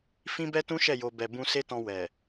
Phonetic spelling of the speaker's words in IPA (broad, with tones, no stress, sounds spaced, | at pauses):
f ĩ˦ b ɛ˦ t ũ˦ ʃ ɛ˦˨ j o˧ b ɛ˨ b ũ˧ s e˦ t ɔ̃˧ w ɛ˨